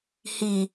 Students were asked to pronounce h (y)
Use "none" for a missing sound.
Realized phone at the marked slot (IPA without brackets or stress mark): i